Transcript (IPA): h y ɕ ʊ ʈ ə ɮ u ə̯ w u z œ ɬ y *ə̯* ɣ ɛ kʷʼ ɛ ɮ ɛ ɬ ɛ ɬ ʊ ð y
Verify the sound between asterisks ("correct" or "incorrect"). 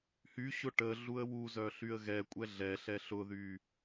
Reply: correct